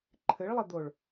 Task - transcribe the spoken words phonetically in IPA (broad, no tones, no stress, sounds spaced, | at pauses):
ǃʰ ɘ ɭ lˠ ɘ d̪ o ɭ